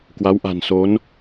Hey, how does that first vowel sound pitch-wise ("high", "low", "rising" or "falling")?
rising